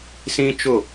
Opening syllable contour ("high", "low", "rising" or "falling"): high